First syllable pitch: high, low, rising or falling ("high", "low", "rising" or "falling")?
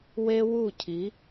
high